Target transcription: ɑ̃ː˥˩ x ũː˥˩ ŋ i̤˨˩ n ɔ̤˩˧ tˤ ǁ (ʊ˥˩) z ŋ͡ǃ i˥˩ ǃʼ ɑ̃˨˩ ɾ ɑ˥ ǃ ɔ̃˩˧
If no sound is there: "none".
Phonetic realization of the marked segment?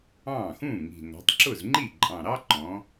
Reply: ʊ˥˩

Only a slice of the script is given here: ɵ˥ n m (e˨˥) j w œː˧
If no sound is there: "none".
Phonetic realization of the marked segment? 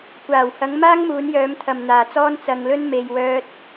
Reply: e˨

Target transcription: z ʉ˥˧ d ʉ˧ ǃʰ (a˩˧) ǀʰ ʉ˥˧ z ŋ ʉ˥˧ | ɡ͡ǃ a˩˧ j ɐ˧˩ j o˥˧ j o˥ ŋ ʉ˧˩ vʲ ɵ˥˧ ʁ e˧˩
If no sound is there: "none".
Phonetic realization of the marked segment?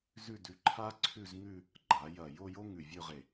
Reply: a˥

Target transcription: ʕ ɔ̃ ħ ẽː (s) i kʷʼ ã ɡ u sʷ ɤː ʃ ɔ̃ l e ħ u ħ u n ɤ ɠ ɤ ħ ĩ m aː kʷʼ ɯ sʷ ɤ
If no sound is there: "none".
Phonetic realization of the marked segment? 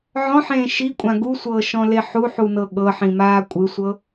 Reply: ʃ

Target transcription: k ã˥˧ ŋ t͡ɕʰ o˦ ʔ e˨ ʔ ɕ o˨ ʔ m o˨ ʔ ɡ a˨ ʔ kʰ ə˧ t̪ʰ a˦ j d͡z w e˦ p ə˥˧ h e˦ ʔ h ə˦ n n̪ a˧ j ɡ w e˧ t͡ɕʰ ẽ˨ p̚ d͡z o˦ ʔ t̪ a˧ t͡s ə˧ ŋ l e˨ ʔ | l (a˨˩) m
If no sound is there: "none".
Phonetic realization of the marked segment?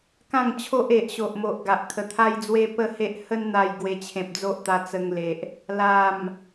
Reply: a˨˩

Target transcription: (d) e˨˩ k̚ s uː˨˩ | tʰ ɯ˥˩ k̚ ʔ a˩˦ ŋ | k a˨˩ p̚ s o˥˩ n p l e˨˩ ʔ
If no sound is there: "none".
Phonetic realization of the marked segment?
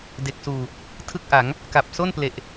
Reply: d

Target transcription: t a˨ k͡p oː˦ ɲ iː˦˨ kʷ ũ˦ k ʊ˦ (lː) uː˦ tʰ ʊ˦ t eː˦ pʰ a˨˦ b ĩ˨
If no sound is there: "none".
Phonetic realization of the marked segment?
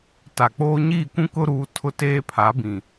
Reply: ɾ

